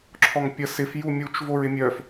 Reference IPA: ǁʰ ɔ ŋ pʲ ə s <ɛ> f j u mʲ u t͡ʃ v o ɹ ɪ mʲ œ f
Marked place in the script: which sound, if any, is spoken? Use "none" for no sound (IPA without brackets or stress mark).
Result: ɪ